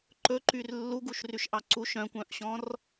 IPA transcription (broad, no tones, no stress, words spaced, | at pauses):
ǃɵǃyr lːuɡuʃryʃʔɑ ǀuʃ œ̃kʷœ̃ʔɕɔ̃r